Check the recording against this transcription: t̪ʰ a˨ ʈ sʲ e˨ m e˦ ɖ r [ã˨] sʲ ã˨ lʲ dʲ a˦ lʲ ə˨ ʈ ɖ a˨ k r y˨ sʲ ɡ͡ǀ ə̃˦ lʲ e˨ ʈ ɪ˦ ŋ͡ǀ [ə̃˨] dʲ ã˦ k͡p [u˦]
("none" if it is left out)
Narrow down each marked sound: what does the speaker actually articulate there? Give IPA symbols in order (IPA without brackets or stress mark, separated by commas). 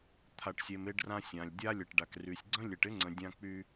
ã˦, ə̃˨, y˦